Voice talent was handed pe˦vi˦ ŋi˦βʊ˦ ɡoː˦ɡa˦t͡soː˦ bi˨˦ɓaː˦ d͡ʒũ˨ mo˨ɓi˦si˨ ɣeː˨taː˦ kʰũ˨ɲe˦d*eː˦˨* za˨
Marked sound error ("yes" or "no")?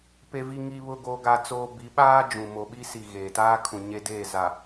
no